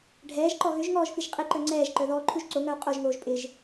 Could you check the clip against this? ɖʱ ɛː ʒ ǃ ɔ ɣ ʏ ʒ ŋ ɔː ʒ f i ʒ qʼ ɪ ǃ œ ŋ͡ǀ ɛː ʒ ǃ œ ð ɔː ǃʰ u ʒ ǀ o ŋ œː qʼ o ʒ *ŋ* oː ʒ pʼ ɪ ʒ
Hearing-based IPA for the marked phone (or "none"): ŋ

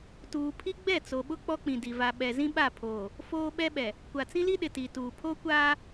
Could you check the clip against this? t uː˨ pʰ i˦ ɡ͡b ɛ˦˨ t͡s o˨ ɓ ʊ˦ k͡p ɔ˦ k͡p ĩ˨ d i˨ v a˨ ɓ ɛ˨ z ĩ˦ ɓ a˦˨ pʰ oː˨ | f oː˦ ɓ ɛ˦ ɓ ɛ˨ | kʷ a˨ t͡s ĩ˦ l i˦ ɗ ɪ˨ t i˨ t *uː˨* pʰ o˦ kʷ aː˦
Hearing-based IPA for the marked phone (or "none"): uː˨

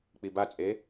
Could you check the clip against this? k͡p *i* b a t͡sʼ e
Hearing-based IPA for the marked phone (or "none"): i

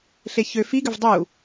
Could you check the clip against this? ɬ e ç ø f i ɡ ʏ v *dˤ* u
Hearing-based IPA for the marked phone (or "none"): dˤ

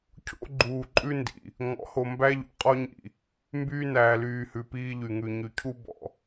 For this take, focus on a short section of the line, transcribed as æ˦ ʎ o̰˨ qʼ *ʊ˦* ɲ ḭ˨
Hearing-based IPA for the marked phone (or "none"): ɔ˦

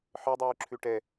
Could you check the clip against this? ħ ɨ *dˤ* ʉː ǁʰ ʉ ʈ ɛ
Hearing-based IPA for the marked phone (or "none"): dˤ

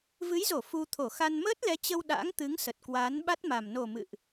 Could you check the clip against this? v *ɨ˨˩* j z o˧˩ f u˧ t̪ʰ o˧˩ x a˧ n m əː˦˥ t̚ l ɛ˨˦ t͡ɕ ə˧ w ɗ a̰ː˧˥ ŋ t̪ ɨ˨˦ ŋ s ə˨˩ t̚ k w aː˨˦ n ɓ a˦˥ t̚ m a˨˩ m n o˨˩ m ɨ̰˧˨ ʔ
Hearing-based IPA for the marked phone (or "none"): ɨ˨˦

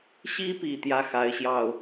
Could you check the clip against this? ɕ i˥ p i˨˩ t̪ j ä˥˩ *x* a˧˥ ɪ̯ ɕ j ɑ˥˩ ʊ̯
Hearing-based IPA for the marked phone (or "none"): x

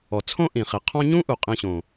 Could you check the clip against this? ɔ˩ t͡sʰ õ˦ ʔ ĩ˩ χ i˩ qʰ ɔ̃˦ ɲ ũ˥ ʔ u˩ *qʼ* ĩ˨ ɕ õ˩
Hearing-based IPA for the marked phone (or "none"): qʼ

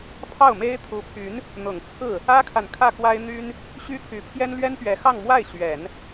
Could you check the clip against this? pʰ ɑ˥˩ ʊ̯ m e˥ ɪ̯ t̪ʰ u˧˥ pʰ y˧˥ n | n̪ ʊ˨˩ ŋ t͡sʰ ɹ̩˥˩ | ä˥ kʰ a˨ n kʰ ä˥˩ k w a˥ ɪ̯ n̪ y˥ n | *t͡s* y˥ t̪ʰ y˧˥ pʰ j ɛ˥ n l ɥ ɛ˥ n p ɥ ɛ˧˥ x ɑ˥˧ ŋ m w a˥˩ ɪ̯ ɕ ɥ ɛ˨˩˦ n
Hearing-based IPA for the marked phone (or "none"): ɕ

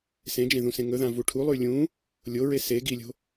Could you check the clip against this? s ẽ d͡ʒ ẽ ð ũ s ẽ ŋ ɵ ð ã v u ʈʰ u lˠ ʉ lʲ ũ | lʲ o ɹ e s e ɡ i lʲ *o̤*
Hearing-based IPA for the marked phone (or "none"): o̤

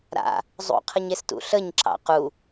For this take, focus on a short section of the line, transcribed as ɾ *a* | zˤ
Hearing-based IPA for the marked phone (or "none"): a̰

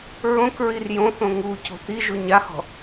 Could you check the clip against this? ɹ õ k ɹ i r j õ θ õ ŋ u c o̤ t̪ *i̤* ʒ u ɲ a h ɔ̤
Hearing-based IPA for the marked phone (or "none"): i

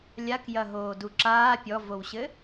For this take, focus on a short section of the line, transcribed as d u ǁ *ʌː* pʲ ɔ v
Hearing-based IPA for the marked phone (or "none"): aː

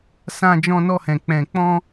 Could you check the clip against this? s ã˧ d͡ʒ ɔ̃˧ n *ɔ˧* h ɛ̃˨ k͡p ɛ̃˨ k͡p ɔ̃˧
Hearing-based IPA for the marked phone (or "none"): ɔ˧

